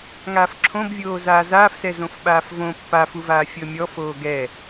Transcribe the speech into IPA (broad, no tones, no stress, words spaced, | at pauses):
ŋaːfǁʰõbvʲoː zaːzaːfsɛ zõfɓaːfvõ pːafuvaː fʲɤmʲɔ foːɡɛ